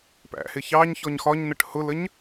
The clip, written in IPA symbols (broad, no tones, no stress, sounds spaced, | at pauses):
p æ̰ h ɪ ç ɑ ɲ ç ɔ ɲ x ɒ ɲ n ə ʈ h ʊ l ə ɲ